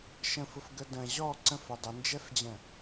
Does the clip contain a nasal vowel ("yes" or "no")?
yes